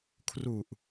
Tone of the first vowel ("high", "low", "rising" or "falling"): low